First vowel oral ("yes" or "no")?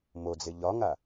yes